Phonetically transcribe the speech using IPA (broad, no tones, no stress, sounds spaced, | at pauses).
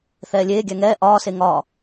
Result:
θ ɛː lʲ eː ɡʲ æ ŋ ɛː ʔ ɒː s e ŋ ɒː